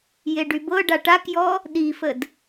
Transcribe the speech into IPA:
j e ɖ y b ɤ ɖ a ʈ a k j ɔ | ɗ i f ə d

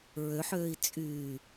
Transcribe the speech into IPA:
ɹ ø ħ øː i̯ t͡sʼ yː

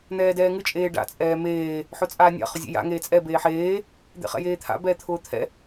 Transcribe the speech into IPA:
n̪ ɛː d ɛː ŋ ɨ t͡ʃʼ eː ɖ a̰ t͡sʼ ɛː m eː | ħ ʊ t͡sʼ aː nʲ a̰ χ ʊ zʲ ḛ j a̰ ŋ eː t͡sʼ ɛ b eː ħ eː | d̪ ḛ χ ɛ̰ j eː t̪ʰ a̰ b ɛː t̪ʰ ʊː t̪ʰ ɛ̰

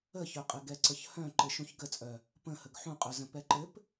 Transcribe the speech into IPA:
ə ç œ qʼ ɘ ɡ ɛ ǀ ə ç h œ̃ ǃ ɘ ʃ ũ ç ɡ ə t͡sʼ œ | p ə̃ h ə ɡ ħ ũ qʼ œ z ə̃ p ɛ ǃ ɘ p

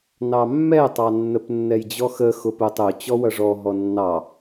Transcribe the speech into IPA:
n ɑ mː ɛ tˤ ɑ nː ə p nː ɛ j d͡ʑ ɔ x ə x ʊ p ʊ tˤ ʊ t͡ɕ ɔ w ʌ ʐ ɔ ɦ ɔ nː ɑ

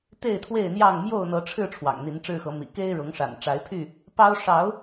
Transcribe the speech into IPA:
t̪ e˥˨ ɪ̯ t̪ʰ w e˥˨ ɪ̯ n̪ j ɑ˥˨ ŋ m j o˥˨ ʊ̯ n̪ ɤ˨˦ ʈ͡ʂʰ ɻ̩˥˨ ʈ͡ʂʰ w ɑ̰˨˩ ŋ n̪ i˨˦ n ʈ͡ʂ ɻ̩˥˨ x ɤ˨˦ m ḭ˨˩ k e˦ ɪ̯ ɻ ʊ˨˦ ŋ ʂ a̰˨˩ n ʈ͡ʂ a˨˦ ɪ̯ pʰ y˥˨ | p ɑ˦ ʊ̯ ʂ ɑ˨˦ ʊ̯

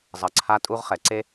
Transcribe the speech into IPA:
zˤ ʌ˨ ǀʰ a˦ tʼ u˦ ʁ χ ɛ˨ ǀ e˦

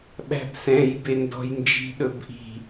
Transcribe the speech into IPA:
ɓ æ̤ b s ɛ̃ j b e n d ɔ̤ j n d͡ʒ i̤ ɗ ɵ b ʔ i̤

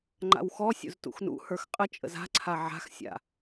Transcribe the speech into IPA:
ŋ͡ǃ a̰ w x ɔ sʲ ṵ z t ṵ x n ṵ h ə˞ x qʼ ə t͡ʃʼ ə̰ z a̤ ǀʰ a ʕ a̤ x sʲ a̰

